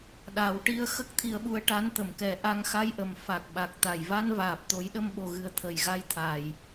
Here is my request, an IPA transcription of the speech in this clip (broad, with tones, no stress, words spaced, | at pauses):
ɗa˨˩˦wʈi˧ə̯ xə˦˥k̚t̪ʰi˧ə̯ɓu˧ə̯ʈa˧˥n t̪ə˨˩˨mkɛ˨˩˦ ʔa˧ŋxa˧jʔə˨˩m fa˨˩k̚ɓa˨˩k̚t̪a˨˩j va˧nvaː˨˩p̚ t̪o˨˩˦jɗə˧mɓo˨˩ɣɨ˨˩ə̯ t̪ʰə˨˩jɣa˧jt̪ʰa˨˩j